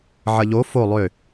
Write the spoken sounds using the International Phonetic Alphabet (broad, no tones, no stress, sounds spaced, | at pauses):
ʕ ɐ ʎ o f o lˠ ʏ